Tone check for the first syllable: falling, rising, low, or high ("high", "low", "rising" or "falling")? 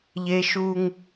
high